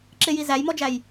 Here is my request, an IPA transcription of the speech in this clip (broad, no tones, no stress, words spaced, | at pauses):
ǁɪji zæjmɔd͡ʒæj